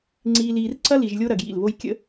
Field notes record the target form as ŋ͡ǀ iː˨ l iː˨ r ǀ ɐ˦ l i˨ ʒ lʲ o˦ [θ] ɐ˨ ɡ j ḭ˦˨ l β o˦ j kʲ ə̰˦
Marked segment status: incorrect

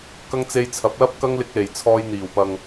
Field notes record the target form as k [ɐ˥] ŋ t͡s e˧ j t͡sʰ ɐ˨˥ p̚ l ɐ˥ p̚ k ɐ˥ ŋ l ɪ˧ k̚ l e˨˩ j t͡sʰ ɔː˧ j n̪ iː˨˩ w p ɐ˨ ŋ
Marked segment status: correct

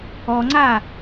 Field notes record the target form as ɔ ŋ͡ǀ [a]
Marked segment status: correct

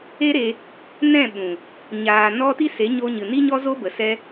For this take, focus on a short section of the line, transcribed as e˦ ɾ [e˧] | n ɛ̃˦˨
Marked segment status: correct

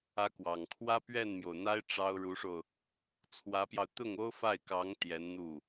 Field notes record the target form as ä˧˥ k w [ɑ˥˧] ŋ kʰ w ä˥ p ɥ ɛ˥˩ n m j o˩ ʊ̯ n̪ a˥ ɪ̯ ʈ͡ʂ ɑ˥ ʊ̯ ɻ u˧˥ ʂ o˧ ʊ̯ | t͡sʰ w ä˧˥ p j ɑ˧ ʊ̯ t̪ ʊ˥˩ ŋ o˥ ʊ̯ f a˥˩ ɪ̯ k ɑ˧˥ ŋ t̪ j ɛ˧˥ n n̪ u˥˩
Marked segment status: incorrect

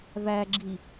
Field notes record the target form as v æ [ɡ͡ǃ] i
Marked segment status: incorrect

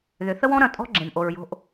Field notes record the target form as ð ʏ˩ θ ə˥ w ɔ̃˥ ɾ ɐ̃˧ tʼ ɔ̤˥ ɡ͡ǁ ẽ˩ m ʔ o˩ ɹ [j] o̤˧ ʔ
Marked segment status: correct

